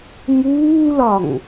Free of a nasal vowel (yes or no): yes